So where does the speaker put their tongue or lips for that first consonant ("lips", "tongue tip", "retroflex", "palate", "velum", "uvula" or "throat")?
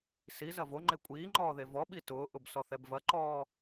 tongue tip